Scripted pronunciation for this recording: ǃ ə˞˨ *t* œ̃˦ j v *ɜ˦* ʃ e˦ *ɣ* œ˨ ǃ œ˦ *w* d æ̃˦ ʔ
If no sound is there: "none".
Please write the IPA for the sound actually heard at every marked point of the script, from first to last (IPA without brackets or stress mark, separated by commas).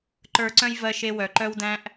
ǀ, ɜ˦, w, w